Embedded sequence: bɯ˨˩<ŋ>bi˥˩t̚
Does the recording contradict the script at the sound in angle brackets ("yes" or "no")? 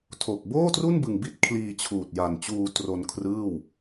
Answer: no